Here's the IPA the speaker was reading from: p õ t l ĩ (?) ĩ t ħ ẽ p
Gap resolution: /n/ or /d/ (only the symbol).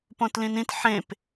n